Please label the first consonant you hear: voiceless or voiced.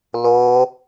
voiced